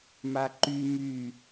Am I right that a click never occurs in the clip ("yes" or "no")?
no